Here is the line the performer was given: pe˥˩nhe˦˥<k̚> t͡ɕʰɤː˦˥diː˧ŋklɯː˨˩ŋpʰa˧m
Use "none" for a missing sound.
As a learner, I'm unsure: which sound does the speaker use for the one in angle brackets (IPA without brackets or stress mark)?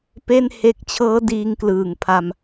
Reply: k̚